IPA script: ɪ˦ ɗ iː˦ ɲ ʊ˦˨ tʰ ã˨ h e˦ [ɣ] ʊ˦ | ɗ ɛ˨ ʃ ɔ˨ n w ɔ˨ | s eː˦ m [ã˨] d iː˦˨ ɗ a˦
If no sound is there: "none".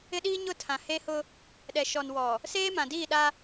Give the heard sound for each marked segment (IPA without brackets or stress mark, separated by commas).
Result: h, ã˨